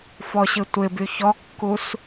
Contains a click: no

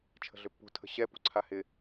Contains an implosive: no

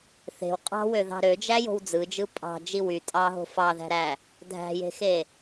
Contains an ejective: yes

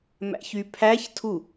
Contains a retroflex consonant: no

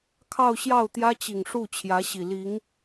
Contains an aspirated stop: yes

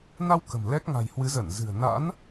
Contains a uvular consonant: no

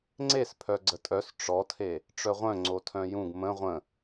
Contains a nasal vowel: yes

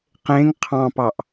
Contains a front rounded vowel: no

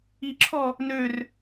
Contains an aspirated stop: yes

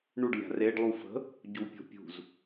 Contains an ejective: no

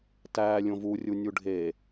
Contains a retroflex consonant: yes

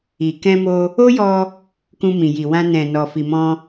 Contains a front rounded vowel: no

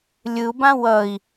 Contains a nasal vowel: yes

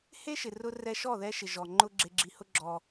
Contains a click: yes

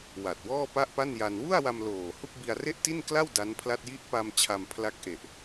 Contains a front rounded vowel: no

